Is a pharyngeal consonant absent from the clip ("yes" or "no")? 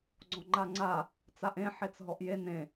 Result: no